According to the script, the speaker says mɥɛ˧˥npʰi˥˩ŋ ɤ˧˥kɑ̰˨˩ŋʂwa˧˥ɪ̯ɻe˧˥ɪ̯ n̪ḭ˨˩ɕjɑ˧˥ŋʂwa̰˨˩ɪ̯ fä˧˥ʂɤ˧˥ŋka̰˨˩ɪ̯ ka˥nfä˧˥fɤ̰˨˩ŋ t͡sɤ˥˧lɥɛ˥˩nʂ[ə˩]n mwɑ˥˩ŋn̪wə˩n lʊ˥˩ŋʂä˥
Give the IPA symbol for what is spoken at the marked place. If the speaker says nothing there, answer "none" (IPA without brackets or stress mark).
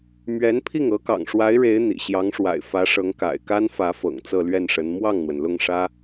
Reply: ə˧˥